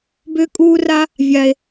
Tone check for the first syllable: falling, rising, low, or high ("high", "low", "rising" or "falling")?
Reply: high